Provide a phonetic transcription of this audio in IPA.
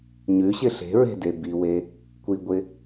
ɲ ʉ ɕ ɪ ɬ e̤ ɹ e̤ d e b i w e | kʷ i ɡʷ ɪ

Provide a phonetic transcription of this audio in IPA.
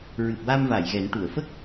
ɹ ɨ˨˩ p̚ w a˧ m v a˨˩˨ j ɣ ɛ˨˩˦ n ʈ u˨˩˨ ə̯ f ə˦˥ k̚

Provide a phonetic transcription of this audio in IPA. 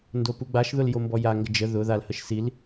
n d o p u ɡ͡b a ʃ ð ʊ l j o m b ɔ j a ŋ ɡ ə d͡ʒ ə ð ʊ ð a l h ə ʃ s i l

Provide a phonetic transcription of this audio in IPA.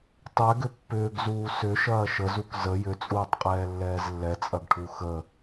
tˤ ɛ ɡ ʏ pː ʏː ɡ z uː s ʏ ʃ ɐː ʃ ə z u k z ə j ʏ t͡sʼ uː tˤ qʼ ɛː lː ɛː z lː ɛ t͡sʼ ɐ ɡ ʈʰ u x ə

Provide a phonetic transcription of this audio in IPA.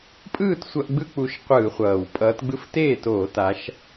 pʼ ɯː˥˩ t sʷ ʌ˧˩˧ ʔ ɡ͡b ɯ˧˥˧ k͡p u˨˦ ʃ qʷ ɯː˧˩˧ χʷ ʌː˨˩ w pʼ ʌː˨˦ t ɡ͡b ɯ˧˥˧ f t eː˥˩ t oː˧˩˧ t a˨˦ ʃ

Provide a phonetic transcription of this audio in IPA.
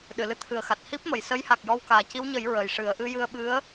ɗ ɨ˨˩˨ l ɨ˧˥ t̪ʰ ɨ˨˩ ə̯ x a˨˩ t̚ h i˦˥ p̚ m ə˨˩˨ j s ə˧˥ j h a˨˩ k̚ j ɔ˧ w k aː˨˩ c i˧˥ w ɲ ə˨˩˦ j ɹ ə˨˩ j ʂ ɨ˨˩˦ ə̯ ʔ ɨ˧˥ j ɨ˧ ə̯ ɓ ɨ˧˥ ə̯

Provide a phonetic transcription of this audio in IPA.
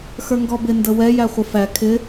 x ə˞ ŋ ɡ ɔ b ɪ n d ə w ɛ j æ χʷ ə f æ kʰ ɪ

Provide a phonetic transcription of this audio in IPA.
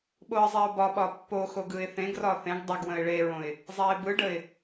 ɓ o ə̯ zˤ ɛ ʊ̯ b ɒ ɓ ɒ pː o x o ɡ ɯ ɪ̯ θ ẽ ɡ r ɒ θ ẽ ɡ dˤ ə ɡ w ə̃ ɪ̯ ɭ e ɹ õ ɪ̯ | zˤ ɛ ɪ̯ b ɯ ɖ ə ɪ̯

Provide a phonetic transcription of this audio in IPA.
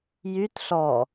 j y t ɬ ɔ

